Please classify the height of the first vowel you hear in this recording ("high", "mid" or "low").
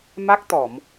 low